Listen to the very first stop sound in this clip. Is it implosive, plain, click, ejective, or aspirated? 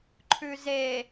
click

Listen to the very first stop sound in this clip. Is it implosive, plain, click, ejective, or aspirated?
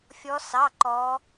click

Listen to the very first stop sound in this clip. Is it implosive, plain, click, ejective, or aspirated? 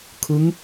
aspirated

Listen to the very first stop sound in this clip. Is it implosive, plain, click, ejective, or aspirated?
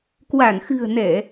plain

